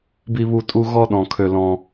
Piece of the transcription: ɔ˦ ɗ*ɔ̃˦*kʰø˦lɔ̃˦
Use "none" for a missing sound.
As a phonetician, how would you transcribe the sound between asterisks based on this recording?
ɔ̃˦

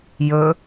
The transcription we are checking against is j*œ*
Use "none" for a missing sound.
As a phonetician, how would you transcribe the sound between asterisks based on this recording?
ɵ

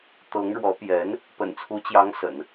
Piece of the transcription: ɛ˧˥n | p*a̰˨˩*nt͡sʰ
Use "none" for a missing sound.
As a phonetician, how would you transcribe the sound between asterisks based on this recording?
ə̰˨˩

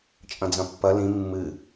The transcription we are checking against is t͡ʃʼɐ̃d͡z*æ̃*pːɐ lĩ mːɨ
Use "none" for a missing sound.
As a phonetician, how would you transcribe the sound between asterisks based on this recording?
ɐ̃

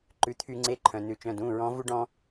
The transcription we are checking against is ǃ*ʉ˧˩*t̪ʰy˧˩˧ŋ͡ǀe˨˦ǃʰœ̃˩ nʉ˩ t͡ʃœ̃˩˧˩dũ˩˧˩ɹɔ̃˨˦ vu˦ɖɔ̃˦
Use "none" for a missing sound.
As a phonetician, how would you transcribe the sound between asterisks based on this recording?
ʉ˩˧˩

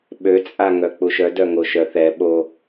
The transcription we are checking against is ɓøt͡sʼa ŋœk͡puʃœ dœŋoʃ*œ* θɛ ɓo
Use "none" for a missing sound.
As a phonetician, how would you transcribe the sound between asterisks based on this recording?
œ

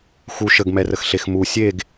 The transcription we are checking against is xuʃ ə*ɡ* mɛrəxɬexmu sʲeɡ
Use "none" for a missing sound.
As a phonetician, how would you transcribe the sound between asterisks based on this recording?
ɡ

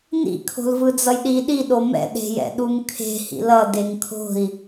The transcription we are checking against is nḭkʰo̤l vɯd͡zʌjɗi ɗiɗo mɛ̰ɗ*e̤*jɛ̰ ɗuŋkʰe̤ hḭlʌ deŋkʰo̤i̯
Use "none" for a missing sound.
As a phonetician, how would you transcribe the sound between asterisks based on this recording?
e̤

